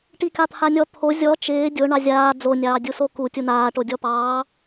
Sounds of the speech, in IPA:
ʈikat̪ʰanʲɔ t̪ʰo zʲɔ t͡ʃɪː dʲo ɳɑzʲaː d͡zonʲɑː dʲusoku tʲunaːʈodʲɔ pɑː

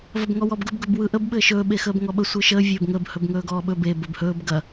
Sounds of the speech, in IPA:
vɐbŋɔwɔbɡɵb ɡɵbwɯʔəb ɓɘːʃɵː ɓexəːbŋɔɓə sʷɯʃəː vʲɵːbŋəb hɵbŋɵːɡɔːɓɵ be bəːbhɵːb ɡɐ

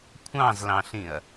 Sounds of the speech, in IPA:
kʷʰɑ̃zlɑ̃ɬĩɐ̯

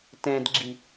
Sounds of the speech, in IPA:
tɛ̃dɡ͡ǁi

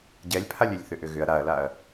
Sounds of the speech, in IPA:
ɟɛlʲpʰalʲʏlʲ θʏʔʏɣʏɐ̯ ɾaɐ̯laɐ̯

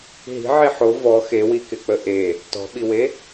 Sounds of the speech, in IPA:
ɦi̤ʕi ħo vɔ xewikɪk͡pə ʔe | tɔ̤ɓiwe

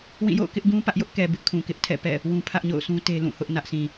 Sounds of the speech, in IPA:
wĩ˦˨jo̰˦˨ʊ̯ kɪ˦ʔɡũ˦ pä˦ʔjʊ˦ʔkɛ˨ bɪ˦ʔkʰũ˨ kɪ˦ʔtʰɛ̰˦˨pɛ̰˦˨ | wũ˦ pʰä˦ʔɲo̰˦˨ʊ̯sũ˦ te˦lũ˦˨hʊ˦ʔ nä˦ʔsĩ˨

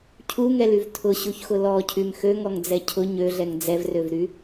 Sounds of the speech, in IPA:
cʰuŋɛlyv tʰʊɕuçxʊ lɔcʰym xøŋɔŋd͡zɛ cʰʊ ɲøɮɛŋ d͡zɛvrøvɾy

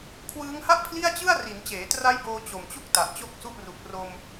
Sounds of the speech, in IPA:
kʰwɯː˦˥ŋha˥˩ʔpʰli˥˩a̯t͡ɕɯ˥˩a̯ ri˩˦n t͡ɕeː˩˦tra˦˥jboː˧ t͡ɕo˨˩mt͡ɕu˥˩k̚ ta˨˩ʔt͡ɕo˥˩k̚su˥˩ʔ ru˨˩k̚ ro˧m

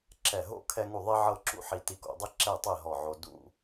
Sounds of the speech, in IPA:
ǁɛ˧˩ɦo̰˥˧ kʰɛ˥ŋu˥˧ ðˤi˥ʕɤ˥˧ǁṵ˥ ħi˧ti˧ko̰˧dˤi˥ ǁɛ˥˧tˤe˥˧ ɦɔ˧˩ʕo˧ dṵ˥˧

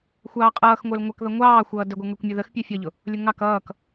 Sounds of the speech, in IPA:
xʷɑːqʼʌːxŋʷə˞l ŋʷʌkðʌ ŋʷɑː xʷʌːdəɡʷə˞ ŋə˞kʷmʲʊðəx pʲɛfʲʌʎʊ | lʲʊŋɑk ʌːk

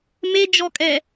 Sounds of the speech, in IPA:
med͡ʒɔkʼɛ

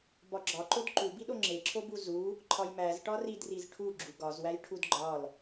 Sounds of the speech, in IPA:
bɒɡ͡ǁɒǃod ǃubiɗo ŋ͡ǁeǁʰobu zu | ǃʰɒjmæz ʈɒridriz ʈʰu ɡ͡ǁuɡɒzwæj ʈʰudɡ͡ǃɒl

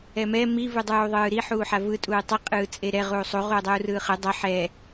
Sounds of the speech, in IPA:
ɛmɛ mi vɯdˤuːðˤɯːɾi ħuːħavɯ tʼuːtˤi qʼɯːt͡sʼeɾɛ ʁuːsˤu ʁuːdˤuːrɯːχɯ dˤɤ ħɛː

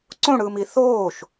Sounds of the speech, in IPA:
ǀõɽɯːmi θoːʃ

